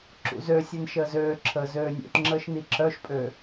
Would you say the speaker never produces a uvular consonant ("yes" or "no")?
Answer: yes